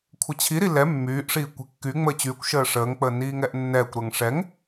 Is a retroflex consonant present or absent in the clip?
present